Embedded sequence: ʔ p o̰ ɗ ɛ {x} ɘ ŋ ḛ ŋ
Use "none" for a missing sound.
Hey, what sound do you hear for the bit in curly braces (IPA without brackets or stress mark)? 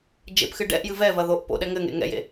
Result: ŋ